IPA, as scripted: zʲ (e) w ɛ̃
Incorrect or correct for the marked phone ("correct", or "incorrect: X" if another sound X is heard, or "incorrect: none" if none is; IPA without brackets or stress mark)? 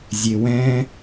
correct